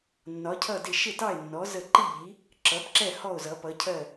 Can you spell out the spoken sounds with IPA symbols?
nːɒ˨˦cʰʌ˦˨dɪ˦˨ ʃɪ˦˨tɑ˦˨e̯nːɔ˨˦ zə˦˨ ǃi˦˨ʎi˨˦ | ǁʌ˨˦bǁɛ˦˨ hɔ˦˨o̯zʌ˨˦pʌ˨˦cʰɜ˦˨

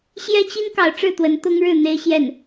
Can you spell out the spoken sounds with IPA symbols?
ɕjɛ˥t͡ɕi˥n kɑ˧˥ʊ̯ʈ͡ʂɻ̩˥˩t̪wə˧˥n t̪ʊ˥ŋɻɻ̩˥˩ n̪e˥ɪ̯ɕjɛ˥˩n

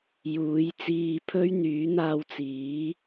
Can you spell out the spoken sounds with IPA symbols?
juː˨˥jt͡siː˧pʰɵ˥ɥ n̪yː˨˥n̪aː˧wt͡siː˨˥

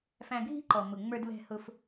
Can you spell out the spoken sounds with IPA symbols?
fæ̃˧ɡʱi̤˦ǃɔ˨ mʊ˨ ŋ͡mə˞˧dβɛ̤˧hʊ˧f

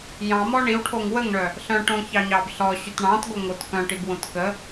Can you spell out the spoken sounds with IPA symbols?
jɑ̃mɔ ɳiwʈʰoŋ wəŋɳœ | ɬœ̃ʈõçɑɲɑb ɬɔɕyt ɳɑ̃tɡo ŋot kœ̃ʈibwõt kə

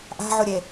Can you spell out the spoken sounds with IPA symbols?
ʔa̤ʕoɾʲe

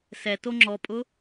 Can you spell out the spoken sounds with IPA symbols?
sɛto ŋ͡ǁɔpʼʊ

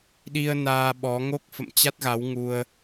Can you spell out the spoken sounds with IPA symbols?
ɗi˧ə̯ naː˧ɓɔ˨˦ ŋo˦˥k̚fə̰˧˨mt͡ɕa˦˥t̚ ɣa˨˦wŋu˧ə̯

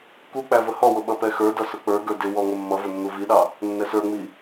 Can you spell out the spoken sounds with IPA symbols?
kuk͡pæ vəhɔwʊ ɓʌpɛxə˞dʌ sʊk͡pə˞ɡə˞ dɪwɔ ŋəmːʌvʊ nːuviɗɑ | nːɛsə˞ŋ͡mi

